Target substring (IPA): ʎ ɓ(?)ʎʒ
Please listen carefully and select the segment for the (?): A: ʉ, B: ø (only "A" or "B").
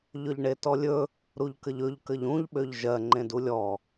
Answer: B